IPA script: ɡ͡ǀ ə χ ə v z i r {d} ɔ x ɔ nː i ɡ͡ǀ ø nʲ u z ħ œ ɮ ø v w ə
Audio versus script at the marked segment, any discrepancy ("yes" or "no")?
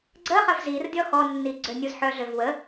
yes